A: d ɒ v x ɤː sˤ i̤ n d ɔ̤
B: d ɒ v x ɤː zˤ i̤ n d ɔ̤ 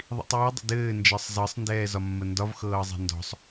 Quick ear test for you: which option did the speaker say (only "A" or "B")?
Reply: B